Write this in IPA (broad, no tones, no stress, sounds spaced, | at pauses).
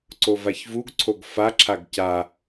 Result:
ǀ o v a ç v u ɡ ǀʰ o ɡ f a ǁʰ a ɡ c a